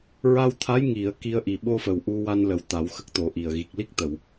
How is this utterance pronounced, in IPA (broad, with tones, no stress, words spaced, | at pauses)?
ɹa˧wt̪ʰa˧˥j ŋi˨˩˨ə̯ ki˧ə̯ʔi˨˩ ɓo˧fə˨˩w ʔu˧wa˧n lə˨˩˨w t̪a˨˩˦wxə˦˥k̚t̪o˨˩˦ʔi˨˩ə̯ ɣi˨˩k̚li˦˥k̚t̪ə˨˩˨w